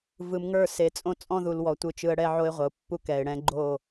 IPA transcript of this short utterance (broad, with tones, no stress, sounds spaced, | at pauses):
v ɯ˨ m ŋ ə˞˦˨ s e˨ t͡sʼ õ˦ t͡sʼ ɔ̃˦ ð u˨ l w ɔ˨ tʷ ɯ˨ t͡ʃ ɯ˨ ə̯ ɽ ɛ˦ ʕ o˦ ɪ̯ ʁʷ ə˨ ʊ̯ pː u˦ k ɛ˨ ɪ̯ ɽ ɛ̃˦ ɡ͡ǃ o˦˨